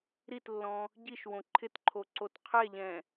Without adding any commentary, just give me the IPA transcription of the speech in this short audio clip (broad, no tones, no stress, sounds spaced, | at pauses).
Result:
ɾ i t lː ɔ̃ | ɟ i ʃ w õ ǃʰ ɪ t ǃʰ o ǀ o t qʰ ɛ ʎ ɛ̃